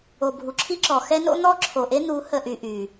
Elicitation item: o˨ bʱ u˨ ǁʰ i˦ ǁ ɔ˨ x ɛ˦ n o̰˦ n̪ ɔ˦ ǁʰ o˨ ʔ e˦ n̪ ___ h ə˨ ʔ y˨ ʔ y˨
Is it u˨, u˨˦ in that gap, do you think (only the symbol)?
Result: u˨˦